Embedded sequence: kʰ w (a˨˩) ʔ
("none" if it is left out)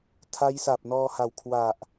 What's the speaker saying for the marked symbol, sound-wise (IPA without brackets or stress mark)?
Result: a˨˩